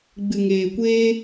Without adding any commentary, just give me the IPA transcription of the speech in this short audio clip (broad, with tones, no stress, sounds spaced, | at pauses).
ɡ͡b ɨ˨ ŋ eː˨ kʷ eː˦